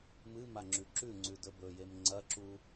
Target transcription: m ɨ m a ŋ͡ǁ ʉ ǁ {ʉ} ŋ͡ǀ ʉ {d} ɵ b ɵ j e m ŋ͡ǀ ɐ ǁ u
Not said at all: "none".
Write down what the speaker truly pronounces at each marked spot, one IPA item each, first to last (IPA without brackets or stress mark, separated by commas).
ʉ, d